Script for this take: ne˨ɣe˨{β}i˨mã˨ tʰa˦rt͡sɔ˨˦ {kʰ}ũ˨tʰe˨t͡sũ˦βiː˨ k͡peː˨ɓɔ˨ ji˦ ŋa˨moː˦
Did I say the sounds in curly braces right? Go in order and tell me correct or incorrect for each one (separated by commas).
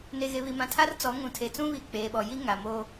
correct, incorrect